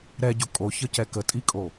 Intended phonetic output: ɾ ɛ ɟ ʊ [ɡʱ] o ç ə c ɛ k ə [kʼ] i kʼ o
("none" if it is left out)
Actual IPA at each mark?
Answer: kʼ, tʼ

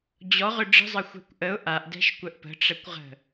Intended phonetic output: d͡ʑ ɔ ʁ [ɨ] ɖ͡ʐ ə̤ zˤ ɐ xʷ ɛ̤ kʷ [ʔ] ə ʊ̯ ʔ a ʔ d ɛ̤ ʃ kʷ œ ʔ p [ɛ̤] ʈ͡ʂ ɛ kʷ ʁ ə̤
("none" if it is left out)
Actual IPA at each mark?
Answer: ʏ, ʔ, ə̤

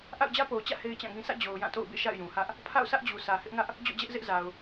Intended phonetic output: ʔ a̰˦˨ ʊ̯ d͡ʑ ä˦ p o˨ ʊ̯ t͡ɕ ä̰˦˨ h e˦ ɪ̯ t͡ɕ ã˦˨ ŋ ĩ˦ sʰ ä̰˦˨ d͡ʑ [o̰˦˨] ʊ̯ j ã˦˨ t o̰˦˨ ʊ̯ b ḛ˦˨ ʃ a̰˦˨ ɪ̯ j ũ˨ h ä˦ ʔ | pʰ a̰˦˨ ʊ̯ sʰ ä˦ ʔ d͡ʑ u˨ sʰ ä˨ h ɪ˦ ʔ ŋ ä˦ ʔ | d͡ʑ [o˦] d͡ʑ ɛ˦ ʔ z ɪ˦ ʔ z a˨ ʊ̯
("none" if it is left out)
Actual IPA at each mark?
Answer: o˨, o̰˦˨

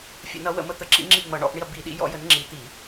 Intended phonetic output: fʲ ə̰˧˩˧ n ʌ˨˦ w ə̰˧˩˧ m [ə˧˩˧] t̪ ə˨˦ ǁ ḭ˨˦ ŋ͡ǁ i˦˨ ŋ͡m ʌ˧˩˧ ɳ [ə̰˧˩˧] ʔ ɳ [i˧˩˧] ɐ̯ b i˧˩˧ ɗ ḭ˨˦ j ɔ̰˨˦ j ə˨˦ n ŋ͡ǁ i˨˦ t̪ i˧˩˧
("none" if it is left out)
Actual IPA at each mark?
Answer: ə˧˩˧, ɔ̰˧˩˧, i˦˨

